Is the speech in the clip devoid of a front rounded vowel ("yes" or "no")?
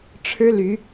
no